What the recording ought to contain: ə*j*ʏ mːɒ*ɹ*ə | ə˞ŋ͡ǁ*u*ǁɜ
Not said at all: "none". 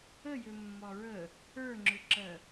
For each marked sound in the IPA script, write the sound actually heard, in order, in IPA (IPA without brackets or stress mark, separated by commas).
j, ɹ, ʏ